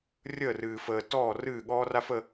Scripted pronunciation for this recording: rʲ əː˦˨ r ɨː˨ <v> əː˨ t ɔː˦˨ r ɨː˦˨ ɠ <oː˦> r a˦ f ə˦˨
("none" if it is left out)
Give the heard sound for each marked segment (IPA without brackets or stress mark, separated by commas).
f, ɔː˦